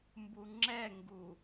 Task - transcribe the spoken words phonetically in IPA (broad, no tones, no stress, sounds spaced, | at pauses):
m b u ŋ͡ǁ ɛ ŋ ɡ u